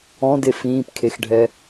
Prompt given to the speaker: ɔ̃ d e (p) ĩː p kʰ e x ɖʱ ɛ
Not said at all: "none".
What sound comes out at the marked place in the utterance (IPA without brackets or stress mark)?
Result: f